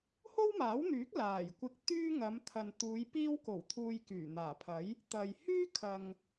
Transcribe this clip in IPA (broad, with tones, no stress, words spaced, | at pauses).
ho˥wmaː˨˥wn̪yː˨˥k̚ laː˨˩j kʷɪ˧k̚t̪yː˥ ŋɐ˨˧mt̪ʰɐ˨nt̪uː˨˧j piː˧wko˨˩w t̪ʰuː˧jkyː˨˩n̪aː˨˩pʰɐ˨˥j | t̪ɐ˨j hyː˥kʰɐ˨ŋ